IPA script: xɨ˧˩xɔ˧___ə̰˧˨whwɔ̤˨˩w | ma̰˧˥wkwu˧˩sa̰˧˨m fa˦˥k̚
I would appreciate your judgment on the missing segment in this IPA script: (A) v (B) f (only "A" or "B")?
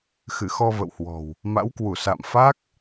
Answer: A